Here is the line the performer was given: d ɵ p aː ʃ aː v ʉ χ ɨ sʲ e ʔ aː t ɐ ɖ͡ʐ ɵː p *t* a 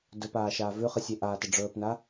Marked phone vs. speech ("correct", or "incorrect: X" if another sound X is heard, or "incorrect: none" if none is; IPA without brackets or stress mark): incorrect: n